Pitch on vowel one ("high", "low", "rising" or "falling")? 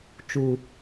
low